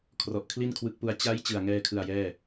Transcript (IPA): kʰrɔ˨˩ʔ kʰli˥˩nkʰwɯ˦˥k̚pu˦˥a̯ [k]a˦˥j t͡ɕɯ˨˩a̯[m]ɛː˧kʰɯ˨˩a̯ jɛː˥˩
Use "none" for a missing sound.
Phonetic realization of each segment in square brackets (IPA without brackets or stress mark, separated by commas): t͡ɕ, ŋ